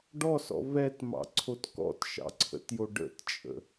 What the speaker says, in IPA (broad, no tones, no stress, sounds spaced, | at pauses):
ɖ ɔ s ɔ̰ v ɛ t m ɑ̰ ǀʰ o t k ɔ̰ t ʃ ɑ̰ ǀʰ ə̰ t j o ɖ ə̰ t t͡ʃʼ ə̰